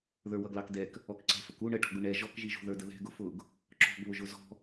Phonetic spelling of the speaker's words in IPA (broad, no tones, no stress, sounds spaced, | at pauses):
ð ə˞ w ʌ ɡ l ɑ k d ɛ k | ɔ k ǀ ɛ̤ f ə k u ɳ ə ʈ ɔ̤ ɡ ʊ ɳ ɛ ʒ ɔ k ʒ i ʒ ṳ ð ə˞ d ə ð ɛ̤ ɡ ʊ f ʊ ɡ | ǁ ɔ̤ ɡ β ʊ ʒ ʊ z ɔ̤